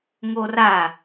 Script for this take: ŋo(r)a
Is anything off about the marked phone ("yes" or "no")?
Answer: no